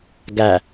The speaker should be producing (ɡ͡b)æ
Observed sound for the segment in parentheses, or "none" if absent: ɡ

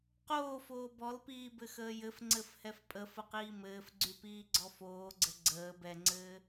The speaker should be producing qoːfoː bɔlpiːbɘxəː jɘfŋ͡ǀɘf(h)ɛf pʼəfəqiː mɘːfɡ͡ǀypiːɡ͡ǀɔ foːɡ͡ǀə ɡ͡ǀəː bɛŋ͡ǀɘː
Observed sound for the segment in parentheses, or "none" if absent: h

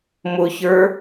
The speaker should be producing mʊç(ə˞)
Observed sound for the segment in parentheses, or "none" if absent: ə˞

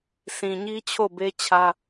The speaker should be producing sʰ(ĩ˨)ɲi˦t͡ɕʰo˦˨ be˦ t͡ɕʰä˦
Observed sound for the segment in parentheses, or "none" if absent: ĩ˨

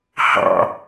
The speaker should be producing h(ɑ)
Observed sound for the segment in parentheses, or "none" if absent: ɑ̰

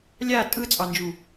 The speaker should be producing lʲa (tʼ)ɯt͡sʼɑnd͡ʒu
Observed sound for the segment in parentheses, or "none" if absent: tʼ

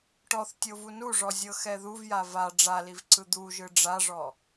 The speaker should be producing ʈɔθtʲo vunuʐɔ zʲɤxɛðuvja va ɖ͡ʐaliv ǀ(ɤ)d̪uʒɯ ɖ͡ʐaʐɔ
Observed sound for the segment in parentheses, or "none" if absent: ɯ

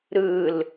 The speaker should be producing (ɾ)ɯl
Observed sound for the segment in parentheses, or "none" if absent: ɾ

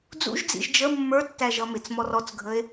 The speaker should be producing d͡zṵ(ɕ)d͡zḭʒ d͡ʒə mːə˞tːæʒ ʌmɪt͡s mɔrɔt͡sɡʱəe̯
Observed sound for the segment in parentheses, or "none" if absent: ʒ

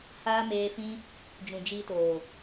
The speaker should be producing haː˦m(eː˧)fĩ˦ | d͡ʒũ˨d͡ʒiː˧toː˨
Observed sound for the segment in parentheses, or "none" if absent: eː˧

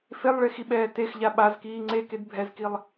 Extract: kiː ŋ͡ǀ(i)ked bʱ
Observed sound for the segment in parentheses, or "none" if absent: e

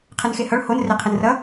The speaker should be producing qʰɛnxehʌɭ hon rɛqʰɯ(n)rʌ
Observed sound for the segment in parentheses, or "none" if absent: n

